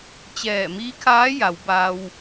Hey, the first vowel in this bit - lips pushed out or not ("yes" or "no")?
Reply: no